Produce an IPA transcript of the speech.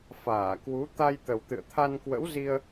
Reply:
f aː˧˩ k w u˨˦ t̪ a˧ j t̪ ə˨˩ w t̪ ɨ̰˧˨ ə̯ t̪ʰ a˧ n k w ə̰˧˥ w z i˧ ə̯

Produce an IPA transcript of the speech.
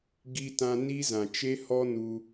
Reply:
ɡ i˧ t ã˧ n i˦ z ã˨ t͡ʃ e˦ h ɔ˦ n u˧

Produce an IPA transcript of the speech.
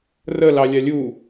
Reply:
r ə l ɑ lʲ a lʲ u

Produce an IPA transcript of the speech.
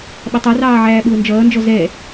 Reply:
ɓ ʌ tˤ ʌ r ɑː ʕ æː ɓ ʊː n d͡ʒ ʌː n d͡ʒ ɔ z ɛ

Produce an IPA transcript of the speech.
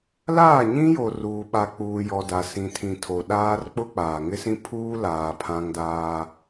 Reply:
l aː˦˨ ɲ ĩ˦ j o˨ r uː˨ ɓ a˨ k͡p uː˨ j ɔ˨ d a˨ s ĩ˨ tʰ ĩ˨ tʰ o˨ ɗ aː˦ r k͡p ʊ˦ k͡p aː˨ ŋ ɪ˦ s ĩ˦ pʰ uː˦ l aː˨ pʰ ã˦ ŋ d aː˦

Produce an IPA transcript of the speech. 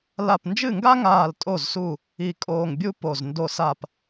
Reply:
l a˧˩ p n d͡ʒ ɨ˥˩ ŋ ɡ a˥ ŋ aː˧˩ l tʼ o˧˩ z s u˧˩ | i˧˩ kʼ oː˧˩ ŋ bʲ u˥ p o˧˩ z n d o˧˩ s a˧˩ p

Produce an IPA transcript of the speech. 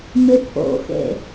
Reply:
m ɪ pʰ o̰ x ḛ

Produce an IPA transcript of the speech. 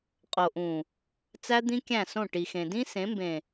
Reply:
qʼ o˨ ʔ ũ˨ | t͡s æ˦ d̪ ĩ˦ kʲ æ̃˦˨ s õ˦˨ ʈ i˨ x ẽ˨ d ĩ˦ s ẽ˨˦ m b ẽ˨

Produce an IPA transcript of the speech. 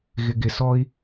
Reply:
ɣ ɪ ɡ ɪ s ɔ i̯

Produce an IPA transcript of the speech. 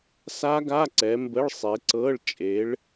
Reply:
s a˦˥ ɡ a˧˥˧ ǀ ɛ˨˦ m b ə˧˥˧ ɭ sˤ e˨˦ ǀ ɤ˧˥˧ ɭ t͡ʃʼ e˨˦ ɭ

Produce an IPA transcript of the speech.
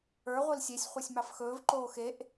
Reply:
ə˞ ʁʷ i l sʲ e sʲ χʷ e sʲ m ɑ f x ɵː v ǃ oː x e ʔ

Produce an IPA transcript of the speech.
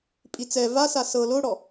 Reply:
pʼ i t͡s ɛ v a s a s ɤ l o ɽ ɔ

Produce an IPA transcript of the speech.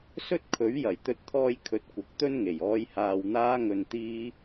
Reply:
s ɵ˥ t̚ kʰ ɵ˨˥ ɥ j ɐ˨˩ j t̪ ɵ˧ t̚ t̪ʰ ɔː˥ j kʰ ɵ˧ t̚ kʷ ɐ˧ k̚ t̪ ɵ˥ n ŋ e˨˩ j ɔː˧ j h aː˨ w n̪ aː˧ ŋ ɵ˨ n t̪ iː˧

